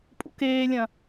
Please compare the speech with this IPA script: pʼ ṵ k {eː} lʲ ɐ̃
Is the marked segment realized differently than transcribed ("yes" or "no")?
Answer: no